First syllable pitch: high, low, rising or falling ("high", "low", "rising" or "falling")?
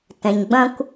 low